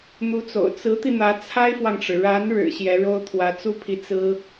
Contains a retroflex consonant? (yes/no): yes